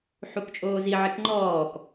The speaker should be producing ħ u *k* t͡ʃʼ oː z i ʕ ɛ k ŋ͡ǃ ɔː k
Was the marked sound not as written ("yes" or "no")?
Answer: no